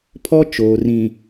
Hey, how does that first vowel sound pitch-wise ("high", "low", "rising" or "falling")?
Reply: high